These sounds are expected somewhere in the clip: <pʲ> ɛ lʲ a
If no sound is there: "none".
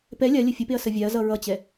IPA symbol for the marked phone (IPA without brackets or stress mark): p